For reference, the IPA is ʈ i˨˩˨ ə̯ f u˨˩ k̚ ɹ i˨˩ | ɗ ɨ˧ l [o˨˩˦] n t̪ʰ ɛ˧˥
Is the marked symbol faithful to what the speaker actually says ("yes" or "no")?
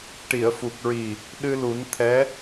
no